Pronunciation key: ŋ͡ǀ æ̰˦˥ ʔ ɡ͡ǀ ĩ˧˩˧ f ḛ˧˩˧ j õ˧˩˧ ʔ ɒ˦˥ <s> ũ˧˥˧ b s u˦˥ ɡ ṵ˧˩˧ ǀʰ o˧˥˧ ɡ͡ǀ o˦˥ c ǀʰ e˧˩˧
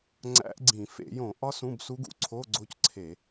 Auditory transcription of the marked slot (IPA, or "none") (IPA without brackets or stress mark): s